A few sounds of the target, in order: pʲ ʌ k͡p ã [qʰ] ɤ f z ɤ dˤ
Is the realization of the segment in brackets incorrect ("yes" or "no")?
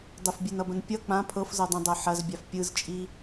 yes